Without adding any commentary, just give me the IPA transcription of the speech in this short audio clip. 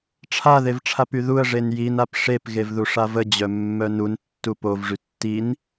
ʈ͡ʂʰ a ð e v ʈ͡ʂʰ a p y ð u ə̯ ʐ e n j i n a p ʂ e p ɣ e v ð u ʂ a v ə d͡ʑ œ mː œ n u n tː u p o v ʐ y tː i n

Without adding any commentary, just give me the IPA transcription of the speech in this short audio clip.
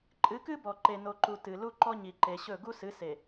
ǃʼ ɨ˨˦ k ɨ˦ b ɔ˨ ǃ e˨ n o˨ ǃ u˨ t ɨ˨ l u˦ ǃ ɔ˦ ɲ i˨ ǃ e˨ ɕ ɵ˦˨ ɡ u˦ s ɨ˨˦ s e˨

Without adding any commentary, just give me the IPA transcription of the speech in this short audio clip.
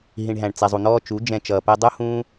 ɦ ĩ˨ ɳ ɦ æ̃˨ ɳ t͡s ɛ˨ zˤ u˨ n̪ ɔː˧ t͡ʃ u˨˦ d͡ʒ ɛ̃˧ t͡ʃ ʌː˨ p ɛ˧ dˤ u˦ h ũː˦

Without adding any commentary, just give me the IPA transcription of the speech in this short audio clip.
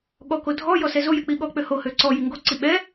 ɠ ɔ k o dʱ ɔ j ɔ s ɛ z o j ɛ k͡p i ɠ ɔ k͡p ø h o h ø ǀ ɔ j i ŋ ɡ o ǀ i ɓ ɛ

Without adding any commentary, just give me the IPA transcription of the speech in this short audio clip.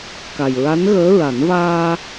k a˨˩ j ɹ a˧˥ n ɣ əː˧˥ ɹ a˨˩˦ n v aː˧

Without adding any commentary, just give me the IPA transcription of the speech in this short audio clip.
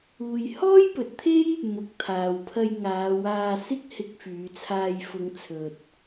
uː˨ j h ɔː˥ j p ɵ˨˥ t̚ t̪ʰ e˥ j | m ʊ˨˥ k̚ t̪ʰ aː˨ w pʰ ɐ˧ j ŋ aː˨˧ w aː˧ s ɪ˥ k̚ h ɪ˧ k̚ f yː˨˧ t͡sʰ aː˧ j f ʊ˨˧ ŋ t͡sʰ ɵ˨ t̚

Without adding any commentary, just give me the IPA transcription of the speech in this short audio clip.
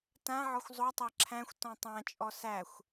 t ã ʕ ɔ xʷ zˤ o tˤ æ ǁʰ æ̃ xʷ t ɔ̃ tˤ ã t͡ʃʼ ɔ s æ xʷ

